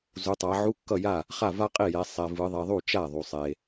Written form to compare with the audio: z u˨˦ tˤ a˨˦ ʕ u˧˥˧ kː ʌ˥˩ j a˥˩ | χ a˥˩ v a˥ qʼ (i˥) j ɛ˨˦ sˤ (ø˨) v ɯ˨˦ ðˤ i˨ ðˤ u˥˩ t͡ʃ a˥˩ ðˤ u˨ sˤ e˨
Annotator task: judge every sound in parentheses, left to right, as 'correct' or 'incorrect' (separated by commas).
incorrect, incorrect